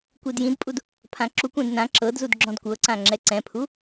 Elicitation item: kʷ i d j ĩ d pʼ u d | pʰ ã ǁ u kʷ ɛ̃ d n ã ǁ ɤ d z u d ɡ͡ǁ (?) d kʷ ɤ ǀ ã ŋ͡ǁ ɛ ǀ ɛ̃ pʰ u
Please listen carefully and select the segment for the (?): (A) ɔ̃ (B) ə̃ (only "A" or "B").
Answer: A